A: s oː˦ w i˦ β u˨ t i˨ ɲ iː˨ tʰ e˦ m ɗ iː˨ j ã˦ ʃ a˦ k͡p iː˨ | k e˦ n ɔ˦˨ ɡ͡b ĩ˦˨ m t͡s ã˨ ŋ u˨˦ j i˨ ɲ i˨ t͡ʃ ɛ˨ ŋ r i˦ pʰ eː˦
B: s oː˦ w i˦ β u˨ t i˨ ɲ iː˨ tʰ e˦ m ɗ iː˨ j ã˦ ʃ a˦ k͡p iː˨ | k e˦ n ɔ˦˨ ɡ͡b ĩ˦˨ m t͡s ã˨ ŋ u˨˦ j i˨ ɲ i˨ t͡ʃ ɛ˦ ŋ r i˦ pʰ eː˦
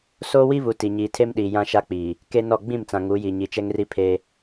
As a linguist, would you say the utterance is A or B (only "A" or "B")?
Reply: B